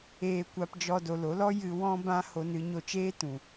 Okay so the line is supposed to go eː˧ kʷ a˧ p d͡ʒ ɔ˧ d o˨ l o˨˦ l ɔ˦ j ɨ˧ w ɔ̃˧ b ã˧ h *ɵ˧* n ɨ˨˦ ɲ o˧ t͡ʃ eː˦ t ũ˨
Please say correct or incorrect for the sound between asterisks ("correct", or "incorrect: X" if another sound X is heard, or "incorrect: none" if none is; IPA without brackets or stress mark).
incorrect: o˧